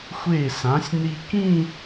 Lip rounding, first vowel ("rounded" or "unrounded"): unrounded